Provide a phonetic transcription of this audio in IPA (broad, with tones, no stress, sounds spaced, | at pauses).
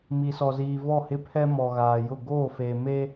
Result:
m i˨ s ɔ˨ z iː˨ v ɔ˦˨ h ɪ˦ pʰ ɛ˦ m ɔ˨ ɣ aː˨ j ʊ˦˨ ɡ oː˦˨ f e˨ m e˦